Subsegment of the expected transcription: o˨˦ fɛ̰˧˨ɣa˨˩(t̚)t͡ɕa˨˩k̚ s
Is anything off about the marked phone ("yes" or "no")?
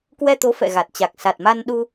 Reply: no